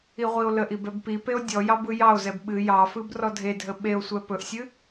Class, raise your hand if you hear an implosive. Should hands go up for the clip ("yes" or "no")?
yes